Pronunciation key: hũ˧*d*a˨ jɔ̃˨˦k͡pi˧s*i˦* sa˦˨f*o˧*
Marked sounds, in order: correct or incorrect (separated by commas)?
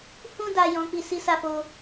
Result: correct, correct, correct